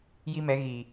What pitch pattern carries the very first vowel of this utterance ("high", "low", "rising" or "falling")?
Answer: high